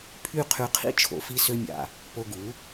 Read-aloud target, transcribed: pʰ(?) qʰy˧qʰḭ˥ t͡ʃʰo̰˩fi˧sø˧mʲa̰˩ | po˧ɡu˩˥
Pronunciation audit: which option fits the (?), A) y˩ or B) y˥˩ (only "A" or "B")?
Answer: B